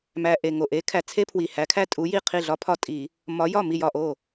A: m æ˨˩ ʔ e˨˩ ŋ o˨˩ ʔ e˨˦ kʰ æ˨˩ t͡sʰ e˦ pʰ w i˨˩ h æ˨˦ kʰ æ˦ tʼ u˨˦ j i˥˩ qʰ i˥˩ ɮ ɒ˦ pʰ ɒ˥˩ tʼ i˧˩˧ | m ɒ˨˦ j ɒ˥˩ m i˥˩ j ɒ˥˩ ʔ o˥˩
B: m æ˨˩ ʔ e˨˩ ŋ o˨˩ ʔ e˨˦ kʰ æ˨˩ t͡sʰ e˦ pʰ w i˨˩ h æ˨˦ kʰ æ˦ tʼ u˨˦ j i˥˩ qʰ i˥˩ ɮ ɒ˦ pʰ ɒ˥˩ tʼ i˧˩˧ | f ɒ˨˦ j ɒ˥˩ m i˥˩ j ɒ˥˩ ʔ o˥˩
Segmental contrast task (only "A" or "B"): A